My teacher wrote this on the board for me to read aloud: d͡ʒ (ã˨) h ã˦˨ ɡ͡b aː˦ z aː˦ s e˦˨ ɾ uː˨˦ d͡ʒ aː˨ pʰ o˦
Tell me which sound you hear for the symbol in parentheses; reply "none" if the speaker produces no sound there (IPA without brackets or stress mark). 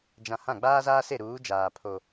ã˨